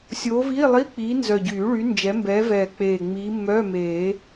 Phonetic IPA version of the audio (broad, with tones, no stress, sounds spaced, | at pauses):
sʲ oː˨˦ v iː˧˥˧ lˠ i˧˥˧ k͡p iː˨˦ n z œ˨˩ ɟ yː˨˩˦ ɭ y˨˦ n d͡ʒ ɛ˨˦ m b ɛː˨˦ v ɛː˨˩ k͡p eː˨˩ ŋ͡m iː˨˦ mː œː˧˥˧ m eː˨˩˦